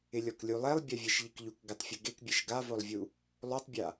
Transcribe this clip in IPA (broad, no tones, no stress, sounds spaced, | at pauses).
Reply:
ɪ lʲ ɔ k lʲ u lˠ ɛ lˠ bʲ a vʲ ɛ ʃ ʎ i k ʎ u k ɡ ɪ tˤ fʲ ʊ ɡ e k bʲ e ʃ ɡ a v o lˠ vʲ u | lˠ o tˤ bʲ a